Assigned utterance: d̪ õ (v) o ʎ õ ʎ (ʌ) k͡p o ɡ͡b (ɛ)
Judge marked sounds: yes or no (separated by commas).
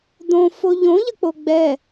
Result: no, yes, yes